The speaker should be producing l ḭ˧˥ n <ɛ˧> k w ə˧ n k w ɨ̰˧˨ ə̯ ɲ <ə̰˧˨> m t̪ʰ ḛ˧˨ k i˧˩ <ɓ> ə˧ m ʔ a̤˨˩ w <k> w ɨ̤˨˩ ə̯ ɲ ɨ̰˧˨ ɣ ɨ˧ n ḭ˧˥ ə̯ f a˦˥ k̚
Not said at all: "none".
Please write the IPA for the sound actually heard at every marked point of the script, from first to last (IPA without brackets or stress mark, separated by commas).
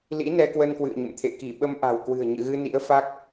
ɛ˧, ə̰˧˨, ɓ, k